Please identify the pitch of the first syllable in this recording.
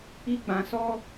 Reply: high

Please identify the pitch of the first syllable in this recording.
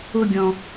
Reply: falling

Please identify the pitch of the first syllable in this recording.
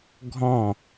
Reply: falling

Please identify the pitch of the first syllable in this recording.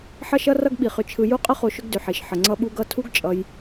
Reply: high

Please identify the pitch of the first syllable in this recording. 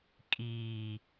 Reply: low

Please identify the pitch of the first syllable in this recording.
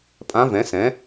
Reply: rising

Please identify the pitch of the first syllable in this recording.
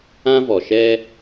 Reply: high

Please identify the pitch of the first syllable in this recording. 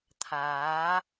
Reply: rising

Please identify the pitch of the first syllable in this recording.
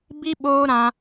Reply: high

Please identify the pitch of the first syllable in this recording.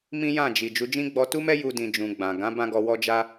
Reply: high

